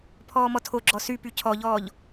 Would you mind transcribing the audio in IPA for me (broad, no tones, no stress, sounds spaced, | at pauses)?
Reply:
pʰ ɔː m ɔ tʰ o ɡ͡ǁ ɔ s y p y cʰ ɔ ʎ ɔː ʎ